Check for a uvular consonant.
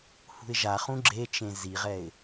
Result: present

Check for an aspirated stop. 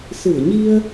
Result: absent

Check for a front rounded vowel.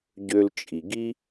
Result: present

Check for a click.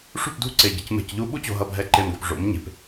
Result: present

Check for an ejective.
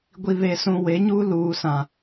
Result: absent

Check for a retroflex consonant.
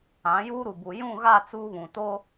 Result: absent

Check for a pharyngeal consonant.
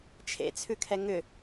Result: absent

